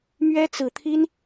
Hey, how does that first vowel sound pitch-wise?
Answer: high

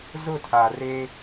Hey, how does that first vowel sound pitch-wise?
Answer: falling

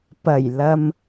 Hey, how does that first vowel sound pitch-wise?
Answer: low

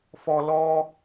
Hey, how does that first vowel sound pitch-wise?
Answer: high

